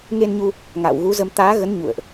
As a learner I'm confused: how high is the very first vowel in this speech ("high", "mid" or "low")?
mid